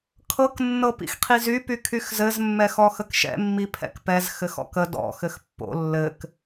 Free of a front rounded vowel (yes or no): no